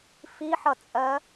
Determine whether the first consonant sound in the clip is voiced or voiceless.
voiceless